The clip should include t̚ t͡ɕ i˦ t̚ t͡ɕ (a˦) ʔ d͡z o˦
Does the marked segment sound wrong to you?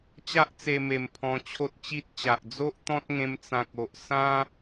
yes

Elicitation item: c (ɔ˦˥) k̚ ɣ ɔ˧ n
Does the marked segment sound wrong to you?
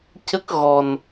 yes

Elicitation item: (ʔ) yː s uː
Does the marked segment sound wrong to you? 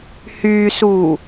yes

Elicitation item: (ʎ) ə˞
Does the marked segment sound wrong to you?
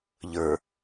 no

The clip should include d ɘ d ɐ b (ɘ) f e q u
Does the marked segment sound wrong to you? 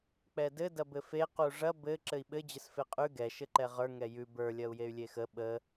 no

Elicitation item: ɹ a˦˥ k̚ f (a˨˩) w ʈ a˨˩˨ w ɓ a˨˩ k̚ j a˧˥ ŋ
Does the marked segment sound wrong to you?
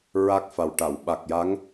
no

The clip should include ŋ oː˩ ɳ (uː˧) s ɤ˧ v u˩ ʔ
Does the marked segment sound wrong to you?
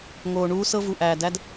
no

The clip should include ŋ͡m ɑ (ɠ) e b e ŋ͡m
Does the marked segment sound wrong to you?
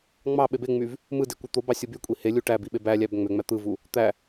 yes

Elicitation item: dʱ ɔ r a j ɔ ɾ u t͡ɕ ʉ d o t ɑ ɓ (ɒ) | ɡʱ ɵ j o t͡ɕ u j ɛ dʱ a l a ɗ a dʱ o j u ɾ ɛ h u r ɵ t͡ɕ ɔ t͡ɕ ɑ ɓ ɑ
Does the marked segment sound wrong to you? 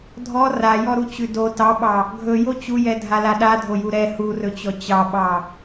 yes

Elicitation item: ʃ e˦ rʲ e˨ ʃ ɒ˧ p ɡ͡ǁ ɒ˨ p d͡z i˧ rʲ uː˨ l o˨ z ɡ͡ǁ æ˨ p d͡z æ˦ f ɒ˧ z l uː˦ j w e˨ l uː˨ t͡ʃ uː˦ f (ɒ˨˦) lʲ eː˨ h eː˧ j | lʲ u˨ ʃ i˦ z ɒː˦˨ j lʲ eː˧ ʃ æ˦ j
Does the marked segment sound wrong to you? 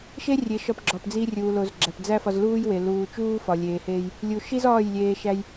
yes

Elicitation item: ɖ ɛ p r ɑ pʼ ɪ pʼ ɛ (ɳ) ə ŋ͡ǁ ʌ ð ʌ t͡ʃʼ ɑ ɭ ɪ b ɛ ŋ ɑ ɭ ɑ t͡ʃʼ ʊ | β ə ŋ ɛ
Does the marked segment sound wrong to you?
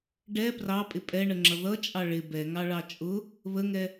no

